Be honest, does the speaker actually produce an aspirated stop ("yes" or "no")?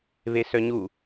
no